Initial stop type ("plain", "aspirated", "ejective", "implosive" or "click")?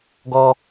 plain